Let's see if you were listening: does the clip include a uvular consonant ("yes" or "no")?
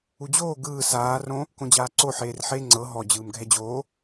no